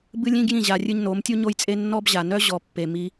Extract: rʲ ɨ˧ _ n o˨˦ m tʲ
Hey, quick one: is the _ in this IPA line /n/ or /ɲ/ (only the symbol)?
ɲ